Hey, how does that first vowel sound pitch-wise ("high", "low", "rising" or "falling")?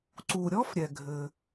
low